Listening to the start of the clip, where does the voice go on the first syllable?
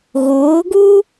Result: rising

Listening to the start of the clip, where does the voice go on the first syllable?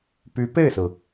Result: rising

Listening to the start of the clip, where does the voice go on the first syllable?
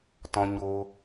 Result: high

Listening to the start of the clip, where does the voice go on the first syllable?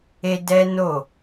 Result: high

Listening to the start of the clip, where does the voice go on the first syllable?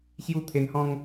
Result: falling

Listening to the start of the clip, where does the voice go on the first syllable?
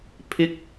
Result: rising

